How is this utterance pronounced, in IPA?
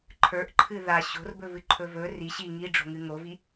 ǃʰ ə˞ ʔ ǃʰ ɨ ð a ɕ o̤ r b ɵ v ɨ ǃʰ ɵ v ɵ r i ɕ i ŋ i ɖ͡ʐ o̤ ŋ ɨ ŋ o v i

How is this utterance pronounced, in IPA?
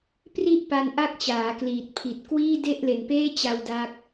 p r i˦˥ ʔ p a˧ n ʔ a˥˩ k̚ t͡ɕ aː˩˦ k l iː˨˩ t̚ pʰ i˨˩ t̚ k w iː˥˩ d e˥˩ ʔ l e˨˩ n p eː˥˩ t͡ɕ a˧ w d a˦˥ k̚

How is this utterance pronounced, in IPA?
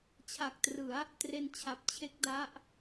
t͡ɕʰ a˨˩ k̚ t r ɯ˩˦ a̯ | t r e˧ n t͡ɕʰ a˨˩ p̚ t͡ɕʰ e˦˥ k̚ d a˦˥ ʔ

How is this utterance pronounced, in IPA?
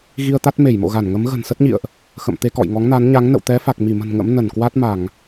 ɣ i˧ ə̯ t̪ a˦˥ t̚ m e˧˩ j m o̰˧˨ ɣ a˧˩ n ŋ ə˨˦ m ɣ ə̤˨˩ n s ə˦˥ t̚ ɲ ḭ˧˨ ə̯ ʔ | x ə̰˧˨ m t̪ e˧ k ɔ̰˧˨ j ŋ ɔ˨˦ ŋ n a˨˦ n ɲ a˨˦ ŋ n ə̰˧˨ w t̪ ɛ˨˦ f a˨˩ k̚ m i˧˩ m ə̤˨˩ n ŋ ə̰˧˥ m n ə˧˩ n k w a˦˥ t̚ m a˧˩˨ ŋ

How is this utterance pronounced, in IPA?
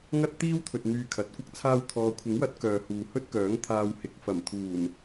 ŋ ɐ˥ t̚ t̪ iː˥ w t̪ʰ ɵ˨ t̚ n̪ yː˧ kʰ ɐ˨˥ t̚ kʷ ɐ˥ k̚ t͡sʰ aː˧ w t̪ʰ ɔː˨ kʷʰ ɪ˨˥ ŋ w ɐ˨˥ t̚ k œː˨ h uː˨ h ɵ˥ t̚ k œː˨˥ ŋ t̪ʰ aː˧ w h ɪ˨ k̚ f ɐ˨˩ m t̪ʰ uː˨˩ n

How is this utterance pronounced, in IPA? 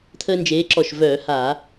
t̪ʰ əː˦ n d͡ʒ eː˨˥ ǁ ɔ˧˩ ʃ v œː˧˩˧ h a˧˩˧

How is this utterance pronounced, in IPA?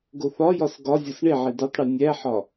ɡ o θ ɒ j ɒ s ɡ ɒ zʲ o s ɳ e ʕ i d o tˤ ɽ i nʲ æ ħ ɒ

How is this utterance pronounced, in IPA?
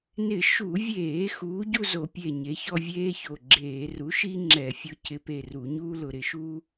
n ɪ˧˩˧ ʃ u˧˩˧ vʲ eː˧˩˧ x uː˨˥ ɟ u˥˧ z o˧˩˧ pʲ e˧˩ ɲ e˨˥ ç ɔ˥˧ vʲ eː˥ ç o˧˩ ɡ͡ǁ eː˧˩˧ r u˨˥ ʃ i˥ ŋ͡ǁ ɛ˧˩˧ fʲ ʊ˨˥ c ɪ˨˥ p e˧˩ r u˧˩˧ ɲ uː˥ l ʊ˧˩˧ ɾ ɪ˧˩˧ ʃ uː˥

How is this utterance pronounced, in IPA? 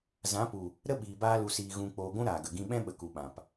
z ã˨˦ p u˨ | ɾ ə˦ ɓ iː˨ b aː˧ l u˨ s iː˨ ɣ ũ˨ k͡p oː˨ ɡʷ ũ˦ ɾ aː˨ ɡ ə˨ ɡ ĩ˦ ɓ ɛ̃˦ ɓ ə˨ k u˨ ɓ ã˨ p

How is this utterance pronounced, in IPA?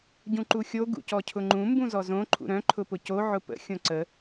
ɟ ũ ǃ u xʲ o ɡ ṵ c ɔ cʰ ʊ ŋ͡ǃ ũ m b ũ z ɔ z õ ǃʰ ṵ ɾ œ̃ ǃʰ ʊ p ʊ c o ʕ ʊ p ə̰ xʲ õ ǀ ə

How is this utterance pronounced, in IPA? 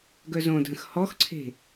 ɡ œ z õ dʱ ə̃ x h ɔ x ǀʰ e̤

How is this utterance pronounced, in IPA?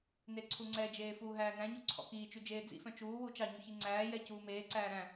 n e ǀʰ u ŋ͡ǀ ɛ d͡ʒ eː f uː ɦ æː n æ̃ ɲ u ǀʰ ɔ̰ k iː t͡ʃ y d͡ʒ eː d͡z ḭ f œ̃ t͡ʃ uː w u t͡ʃ ɑ ɲ u ç i ŋ͡ǀ æː j ɛ c uː m eː ǀ æː ɾ æ̃

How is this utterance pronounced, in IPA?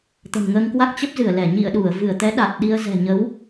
t̪ ə̤˨˩ n ŋ əː˧ ŋ k w a˦˥ k̚ t͡ɕ ə˦˥ p̚ z ɨ˧˩ ə̯ l ɛ˧˩ ɲ ḭ˧˨ ə̯ ɗ u˧˩ ə̯ v ɨ˧˩ ə̯ t̪ ɛ˨˦ ɗ a˨˩ t̚ ɗ i˧ ə̯ z ɛ̤˨˩ ɲ ə˨˦ w

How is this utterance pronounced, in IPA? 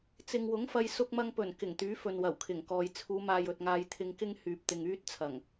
t͡s ɪ˨ ŋ w ʊ˨˥ ŋ f ɐ˧ j s ʊ˥ k̚ m ɐ˥ ŋ p ɵ˨˩ n k ɪ˨˩ ŋ t̪ yː˨˥ f ɵ˨ n w ɐ˨˩ w kʰ ɪ˨˩ ŋ k ɔː˨ j t͡sʰ uː˨˧ m aː˨ j ɵ˨ t̚ ŋ aː˧ j t̪ʰ ɪ˧ ŋ k ɪ˥ ŋ h yː˨ p̚ t̪ ɪ˨ ŋ yː˥ t̚ t͡sʰ ɐ˨˩ ŋ

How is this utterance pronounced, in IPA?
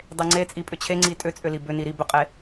dˤ e ŋ͡ǀ e t͡sʼ i pʼ ʏ t͡ɕʰ e ŋ͡ǀ i tʼ ʏ t͡sʼ ʏ l i b ʏ n i ɾ i b ʏ qʼ e

